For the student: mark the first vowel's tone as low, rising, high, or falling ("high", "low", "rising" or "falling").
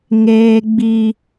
high